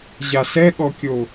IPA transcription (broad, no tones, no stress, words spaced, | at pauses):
ʑasɛɠɔkʲo